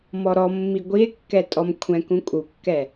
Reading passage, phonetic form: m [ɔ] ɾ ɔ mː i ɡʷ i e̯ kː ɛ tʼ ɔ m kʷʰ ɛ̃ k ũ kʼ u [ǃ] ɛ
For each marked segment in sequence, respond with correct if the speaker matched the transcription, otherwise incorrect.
correct, incorrect: kː

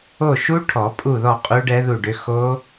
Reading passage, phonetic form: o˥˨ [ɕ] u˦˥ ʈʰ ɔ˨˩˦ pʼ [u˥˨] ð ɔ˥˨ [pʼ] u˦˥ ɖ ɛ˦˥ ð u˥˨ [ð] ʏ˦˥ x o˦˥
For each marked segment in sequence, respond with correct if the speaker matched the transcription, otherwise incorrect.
incorrect: ʃ, correct, incorrect: qʼ, incorrect: ɖ

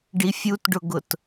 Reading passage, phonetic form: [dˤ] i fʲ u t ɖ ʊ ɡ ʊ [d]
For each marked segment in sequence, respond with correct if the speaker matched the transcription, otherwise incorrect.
incorrect: ɖ, incorrect: t

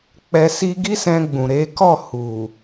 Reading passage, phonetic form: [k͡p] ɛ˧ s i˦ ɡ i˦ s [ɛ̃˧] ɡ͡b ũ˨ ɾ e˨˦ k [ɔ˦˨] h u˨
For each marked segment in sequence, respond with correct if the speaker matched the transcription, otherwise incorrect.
correct, correct, correct

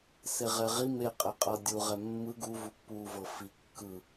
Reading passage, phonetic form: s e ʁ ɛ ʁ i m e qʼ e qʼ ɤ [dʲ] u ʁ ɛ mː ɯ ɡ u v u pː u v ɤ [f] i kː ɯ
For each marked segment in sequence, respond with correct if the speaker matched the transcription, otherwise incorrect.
correct, correct

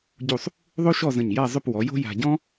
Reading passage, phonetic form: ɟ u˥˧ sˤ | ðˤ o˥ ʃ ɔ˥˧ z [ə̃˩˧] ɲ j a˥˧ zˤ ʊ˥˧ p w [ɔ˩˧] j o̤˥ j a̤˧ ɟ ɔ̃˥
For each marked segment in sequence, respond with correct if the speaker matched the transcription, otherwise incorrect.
incorrect: ə̃˧˩, correct

